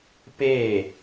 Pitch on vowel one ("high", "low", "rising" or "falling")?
falling